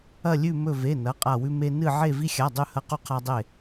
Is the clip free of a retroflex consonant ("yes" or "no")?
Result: yes